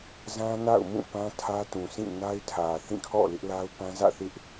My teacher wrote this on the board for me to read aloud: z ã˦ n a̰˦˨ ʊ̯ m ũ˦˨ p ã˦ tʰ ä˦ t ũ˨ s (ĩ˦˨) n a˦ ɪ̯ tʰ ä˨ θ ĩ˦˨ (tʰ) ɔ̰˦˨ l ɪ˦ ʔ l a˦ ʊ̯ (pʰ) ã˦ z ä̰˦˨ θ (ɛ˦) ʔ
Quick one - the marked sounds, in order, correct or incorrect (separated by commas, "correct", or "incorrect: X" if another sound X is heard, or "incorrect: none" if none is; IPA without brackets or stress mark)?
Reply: correct, incorrect: kʰ, incorrect: p, incorrect: ɪ˦